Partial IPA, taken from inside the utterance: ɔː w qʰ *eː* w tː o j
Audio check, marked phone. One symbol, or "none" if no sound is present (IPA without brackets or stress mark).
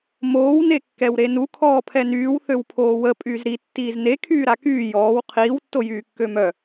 iː